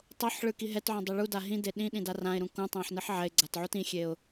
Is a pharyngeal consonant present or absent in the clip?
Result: present